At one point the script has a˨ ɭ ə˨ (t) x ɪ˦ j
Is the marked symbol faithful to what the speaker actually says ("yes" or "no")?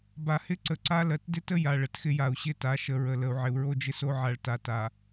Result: yes